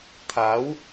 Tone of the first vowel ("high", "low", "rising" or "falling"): rising